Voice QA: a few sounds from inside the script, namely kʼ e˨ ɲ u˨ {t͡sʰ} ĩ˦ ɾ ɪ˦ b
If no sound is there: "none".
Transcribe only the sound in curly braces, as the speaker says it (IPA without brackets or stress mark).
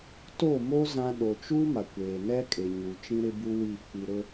t͡ʃ